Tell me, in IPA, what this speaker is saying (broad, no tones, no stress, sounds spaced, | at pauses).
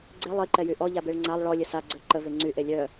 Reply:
ɡ͡ǀ e lˠ i ǃ ɛ j y ʔ ɔ ʎ a b e ɭ ŋ͡ǀ a lˠ ɭ ɔ lʲ ə s a ɡ͡ǀ ø ǃ ə v e ŋ͡ǀ y ʔ e lʲ œ